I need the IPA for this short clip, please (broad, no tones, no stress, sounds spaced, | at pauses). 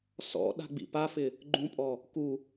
s ɔ̰ ɗ a̤ ɡ͡b ḭ p a f ɪ | ɡ͡ǃ ũ pʼ ɔ | k u